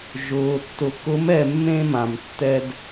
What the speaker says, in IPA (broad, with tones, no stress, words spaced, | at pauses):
ʒʊː˨ tːʊ˨kʊ˨˦mɛ˨ mːẽ˧mã˨mtːɛ˧d